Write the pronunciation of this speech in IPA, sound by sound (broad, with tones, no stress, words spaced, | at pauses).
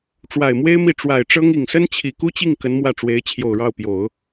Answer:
ʈ͡ʂwa˨˩ɪ̯mwe˥ɪ̯mi˥˩ ʈ͡ʂwa˨˩ɪ̯ʈ͡ʂɤ˥ŋ i˨˩ŋsə˥nt͡ɕʰi˨˩ ku˥t͡ɕi˥˩ŋ kə˧˥nmwä˥˩ʈ͡ʂwe˧˥ɪ̯ t͡ɕʰjo˨˩ʊ̯ɻɑ˥˩ʊ̯pjo˨˩˦ʊ̯